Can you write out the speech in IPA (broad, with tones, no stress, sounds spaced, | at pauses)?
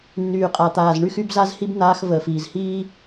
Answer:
nː yː˨ qʼ a˨ t̪ aː˨ z ɳ y˦ x y˦ b z a˦ z h i˦ b n̪ aː˧ x v əː˨ f iː˨ z h iː˦